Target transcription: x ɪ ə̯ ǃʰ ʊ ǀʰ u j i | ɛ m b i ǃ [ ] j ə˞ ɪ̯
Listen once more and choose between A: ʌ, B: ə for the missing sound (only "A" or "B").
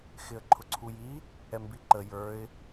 B